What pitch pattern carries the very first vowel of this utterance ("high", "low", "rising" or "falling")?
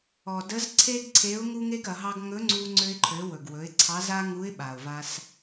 low